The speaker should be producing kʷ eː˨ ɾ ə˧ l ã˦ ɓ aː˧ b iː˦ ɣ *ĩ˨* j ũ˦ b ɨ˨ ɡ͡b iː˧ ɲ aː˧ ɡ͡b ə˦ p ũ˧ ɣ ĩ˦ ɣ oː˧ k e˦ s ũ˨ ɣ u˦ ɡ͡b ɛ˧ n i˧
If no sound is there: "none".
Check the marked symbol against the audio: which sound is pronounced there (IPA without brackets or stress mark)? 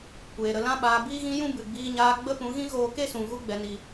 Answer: ĩ˦